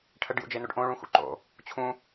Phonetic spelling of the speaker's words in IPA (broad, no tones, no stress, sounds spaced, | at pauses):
ʈʰ ə ɖ j ṵ d͡ʒ e n o ɖ ʔ õ ɭ ũ x ṵ ǃ o̰ | t͡ɕʰ ũ